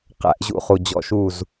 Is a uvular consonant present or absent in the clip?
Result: present